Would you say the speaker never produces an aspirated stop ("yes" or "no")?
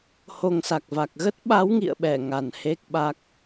yes